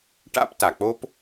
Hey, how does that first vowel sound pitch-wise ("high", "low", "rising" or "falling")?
high